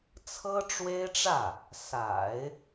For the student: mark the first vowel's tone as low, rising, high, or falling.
high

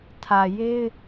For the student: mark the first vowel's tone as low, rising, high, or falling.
low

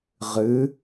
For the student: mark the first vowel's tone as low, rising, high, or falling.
rising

